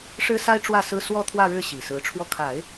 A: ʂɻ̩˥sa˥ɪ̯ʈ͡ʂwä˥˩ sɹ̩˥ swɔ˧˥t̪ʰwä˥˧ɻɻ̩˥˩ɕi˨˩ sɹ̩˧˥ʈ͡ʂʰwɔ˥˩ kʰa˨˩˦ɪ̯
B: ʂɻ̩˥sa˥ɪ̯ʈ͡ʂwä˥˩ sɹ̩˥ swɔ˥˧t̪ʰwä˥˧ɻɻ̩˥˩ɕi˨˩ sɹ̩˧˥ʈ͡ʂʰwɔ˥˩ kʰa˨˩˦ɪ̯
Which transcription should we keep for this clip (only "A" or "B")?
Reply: B